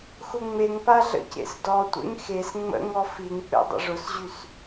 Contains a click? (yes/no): no